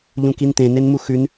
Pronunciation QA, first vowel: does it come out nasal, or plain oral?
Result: nasal